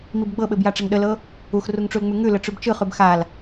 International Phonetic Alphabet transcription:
m i b ɡ͡b ɤ ɓ ɘ b j a ʈ͡ʂ ɘ ŋ ɗ ə l ɤ | u x r u ŋ ʈ͡ʂ u l ŋ͡m ʉ ŋ ʉ l ə ʈ͡ʂ ʉ b t͡ʃ ɯ χ ʉ b x a l

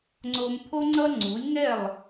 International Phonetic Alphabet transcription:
ŋ͡ǀ o˧ m pʰ o˥ ŋ͡ǀ ʌ˥ ŋ͡ǀ u˩˥ lʲ ŋ ɛ˥˩ lˠ

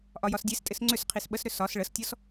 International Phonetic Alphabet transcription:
ʔ ɒ j ɒ s dʲ e s tʼ ɪ s ŋ͡ǀ ʏ s qʰ i s ɓ ə s ɾ ʏ s ɒ s ɭ ə s tʲ ɔ s

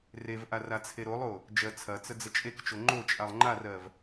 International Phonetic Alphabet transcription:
r e v ʔ a r a t͡sʰ e ɾ o lˠ o | d͡ʒ ɜ t͡sʰ ɐ t͡s ə d͡z ə t͡ʃʼ e k t͡ʃ o ŋ͡ǃ o t͡ʃʼ a lˠ ŋ͡ǃ a r ɜ v

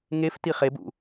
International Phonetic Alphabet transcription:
ŋ e f t i χ e b ṵ

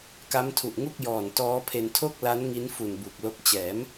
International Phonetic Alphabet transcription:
k a˦˥ m tʰ u˨˩ ʔ ŋ u˥˩ k̚ j ɔː˨˩ n t ɔː˦˥ pʰ e˧ n tʰ o˥˩ k̚ l a˦˥ n ŋ i˦˥ n f u˨˩ n b uː˨˩ k̚ l o˦˥ k̚ t͡ɕ ɛː˩˦ m

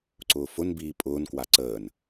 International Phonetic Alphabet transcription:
ǀ ʊː f ʊ n b iː pʼ ʊː n k w a ǀ əː n

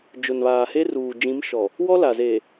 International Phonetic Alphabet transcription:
d͡ʒ ʊ˨ n β aː˨ h e˦ r uː˨ d͡ʒ ĩ˨˦ m ʃ ɔ˨ | w ɔ˦ l a˨ z eː˨

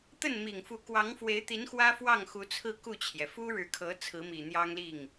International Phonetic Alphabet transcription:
t̪ ə˥˩ n m i˨˩ ŋ f u˧˥ k w ɑ˧˥ ŋ f w e˧˥ ɪ̯ t̪ i˧˥ n x w ä˥ f w ɑ˥˩ ŋ x u˧˥ t͡sʰ ɹ̩˥˧ k u˥˩ t͡ɕʰ j ɛ˩ f u˥ ɻ ɻ̩˧˥ kʰ ɤ˧˥ t͡sʰ ɹ̩˧˥ m i˨˩ n̪ j ɑ˥ ŋ l i˥˩ ŋ

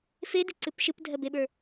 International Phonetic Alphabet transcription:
f e d i ǀ ɨ p ʃ ɨ p dʱ ɜ b e ɓ ə˞

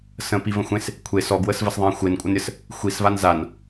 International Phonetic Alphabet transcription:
s ə̃ p i v ə̃ xʷ ẽ s | kʷʰ e s ɔ ɡ w ə s v ə s ðˤ ẽ xʷ e n kʷʼ ə n ɾʲ ə s | xʷ i s v a n z a n

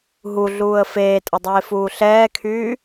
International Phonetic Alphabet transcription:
ɦ u ɮ uː ə̯ f eː tʼ ə dˤ eː f uː ɬ ɛː kʰ yː

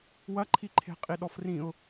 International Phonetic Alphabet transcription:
w ɐ ǃʰ i ǃʰ e̤ qʼ i ɗ ɔ f r ĩ ʊ̯

